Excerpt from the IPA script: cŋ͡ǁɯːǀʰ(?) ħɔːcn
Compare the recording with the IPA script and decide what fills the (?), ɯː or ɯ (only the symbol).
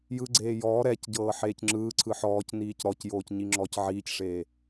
ɯ